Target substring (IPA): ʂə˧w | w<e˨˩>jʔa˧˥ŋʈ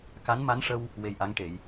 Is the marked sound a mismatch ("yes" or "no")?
yes